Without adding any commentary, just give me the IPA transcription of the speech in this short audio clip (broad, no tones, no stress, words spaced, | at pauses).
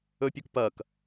ɵpʲukpɐk